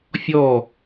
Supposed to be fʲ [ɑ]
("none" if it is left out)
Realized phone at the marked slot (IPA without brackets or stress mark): ɔ